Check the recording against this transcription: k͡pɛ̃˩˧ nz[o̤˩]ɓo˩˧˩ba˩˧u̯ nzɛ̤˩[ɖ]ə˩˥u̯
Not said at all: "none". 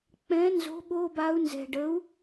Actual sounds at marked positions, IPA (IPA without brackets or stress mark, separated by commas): o̤˩˥, ɖ